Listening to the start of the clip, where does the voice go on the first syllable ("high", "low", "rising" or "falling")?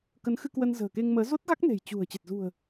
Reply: rising